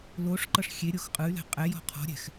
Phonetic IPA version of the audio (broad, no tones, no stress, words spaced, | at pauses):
loʂǃɤʂ xʲeɾʲox qʼɯy̯lɛ̤ qʼɛjɔ̤ qʰɔ̤ɾʲɛ̤x